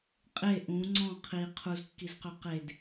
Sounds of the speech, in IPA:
qʼ e ʔ ũ ŋ͡ǀ ɔ̃ qʰ i qʰ u z kː i z q ø q e d

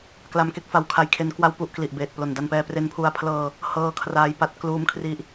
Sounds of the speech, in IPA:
k l a˧ m k e˥˩ k̚ f a˦˥ w kʰ a˧ j kʰ e˦˥ n k w a˥˩ w p u˥˩ ʔ k l i˨˩ ʔ b eː˨˩ t̚ p l o˨˩ n d a˧ n p ɛː˧ p r e˦˥ n pʰ u˧ a̯ pʰ l ɤː˧ | h ɤː˧ kʰ r aː˦˥ j p a˦˥ t̚ k l uː˦˥ m kʰ r i˦˥ ʔ

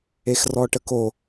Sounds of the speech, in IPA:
e x r ɔ ʈ ə k o

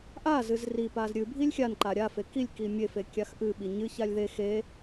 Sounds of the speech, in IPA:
ʔ a z ɨ z r i p a z ɾʲ ɨ bʱ i lʲ xʲ a n ǃ a ɾʲ a f e k i lʲ k i mʲ e f e kʲ a x ʔ ɨ ɓ i ɲ ɨ ç a lʲ ð e x e

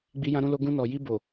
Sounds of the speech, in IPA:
ɡ͡b i˧ j ã˧ ɾ ũ˧ l o˧ ɡ ũ˧ n ɔ˨ j i˧ b o˨

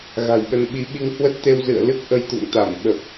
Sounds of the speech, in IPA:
ɣ a̤˨˩ j ɓ ə˧ n ɓ i˨˦ ɓ i˧ ŋ h w ə˦˥ t̚ t̪ e˧ w z ɨ̰˧˨ ə̯ l ɨ˦˥ k̚ ʔ ə˧ j t̪ ṵ˧˨ ŋ t̪ a˧˩ m ɓ ə˨˩ p̚

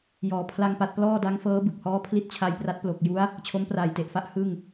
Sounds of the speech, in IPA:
j ɔː˨˩ pʰ l a˧ ŋ p a˨˩ t̚ p l ɔː˥˩ d a˦˥ ŋ f ɤː˦˥ b ɯ˨˩ k̚ h ɔː˦˥ pʰ l i˦˥ t̚ t͡ɕʰ a˧ j p r a˦˥ t̚ p l o˨˩ k̚ j u˦˥ a̯ | t͡ɕʰ o˦˥ m p r aː˨˩ j t e˨˩ ʔ f a˦˥ ʔ h ɯ˥˩ ŋ

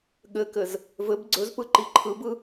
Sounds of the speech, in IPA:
ɠ ɘ k ɘ z | v ɘ b ɡ͡ǀ ɵ z p ɯ ǃ i ǃʰ ɯ b ɯ

